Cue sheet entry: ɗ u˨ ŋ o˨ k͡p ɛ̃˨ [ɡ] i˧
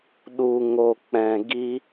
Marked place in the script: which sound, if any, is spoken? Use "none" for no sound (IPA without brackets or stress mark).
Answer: ɡ